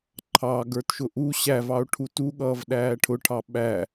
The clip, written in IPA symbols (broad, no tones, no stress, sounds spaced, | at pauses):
ǃʰ ɑ ɡ ə˞ t ʃ ʊ ʔ u ɕ æ v ɑ o̯ ʈʰ u t u ɠ ʌː v ɗ æː ʈʰ ʊ ʈʰ ɑ ɓ æ